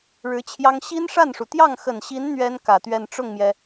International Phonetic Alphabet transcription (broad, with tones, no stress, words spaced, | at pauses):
ɻɻ̩˧˥t͡ɕʰjɑ˥ŋ ɕi˥nʂa˥˩nʂu˩ t̪jɑ˥˩ŋxə˨˩nɕi˧˥n n̪ɥɛ˥n kä˨˩t̪ɥɛ˥˧n ʈ͡ʂʊ˥˩ŋmjɛ˩